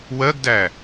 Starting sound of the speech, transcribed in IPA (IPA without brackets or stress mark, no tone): w